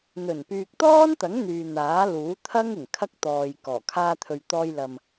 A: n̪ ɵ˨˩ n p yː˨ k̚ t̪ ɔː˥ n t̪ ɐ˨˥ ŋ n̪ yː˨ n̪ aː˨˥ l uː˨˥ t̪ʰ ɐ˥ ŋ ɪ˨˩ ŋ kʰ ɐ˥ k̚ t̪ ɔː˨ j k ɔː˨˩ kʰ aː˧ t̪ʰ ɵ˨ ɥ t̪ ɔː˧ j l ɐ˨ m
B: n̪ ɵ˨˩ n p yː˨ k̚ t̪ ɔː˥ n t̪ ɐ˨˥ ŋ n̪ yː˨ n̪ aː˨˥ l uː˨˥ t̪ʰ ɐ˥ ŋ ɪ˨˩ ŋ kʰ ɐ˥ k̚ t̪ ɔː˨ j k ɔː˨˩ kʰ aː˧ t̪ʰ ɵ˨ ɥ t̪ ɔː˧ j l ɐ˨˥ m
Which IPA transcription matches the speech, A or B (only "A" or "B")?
A